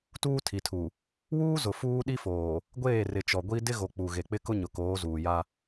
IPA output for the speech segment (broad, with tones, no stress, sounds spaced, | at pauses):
t uː˦ tʰ i˨ tʰ u˨ | w uː˦ z ʊ˨ f uː˦ ɗ i˦ f oː˨ | ɡʷ eː˦˨ r ɪ˨ t͡ʃ ɔ˨ ɡʷ i˦ d ɪ˦ ɣ o˨ k͡p u˨ ɣ e˨ k͡p ɪ˦ k ʊ˦ ɲ ʊ˨ k oː˨˦ z uː˨ j a˦